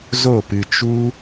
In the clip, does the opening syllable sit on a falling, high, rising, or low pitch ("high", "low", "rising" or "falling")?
falling